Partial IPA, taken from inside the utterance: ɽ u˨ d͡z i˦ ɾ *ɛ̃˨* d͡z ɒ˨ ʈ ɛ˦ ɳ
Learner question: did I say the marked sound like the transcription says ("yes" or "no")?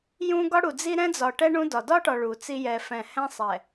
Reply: no